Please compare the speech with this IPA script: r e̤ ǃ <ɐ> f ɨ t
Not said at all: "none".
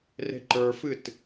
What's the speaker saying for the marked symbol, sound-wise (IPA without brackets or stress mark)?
ə˞